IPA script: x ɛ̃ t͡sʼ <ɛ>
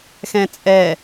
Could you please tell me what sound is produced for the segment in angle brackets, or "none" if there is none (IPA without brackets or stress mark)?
ɛ